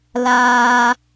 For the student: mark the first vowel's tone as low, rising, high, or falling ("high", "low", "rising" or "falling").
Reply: low